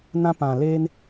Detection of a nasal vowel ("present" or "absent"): present